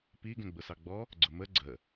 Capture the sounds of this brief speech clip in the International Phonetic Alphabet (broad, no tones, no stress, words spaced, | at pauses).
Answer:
pi ɡɛ̃ɡ͡bʊsɑɡ͡bɔ | ɡ͡ǀʊmə ɡ͡ǀə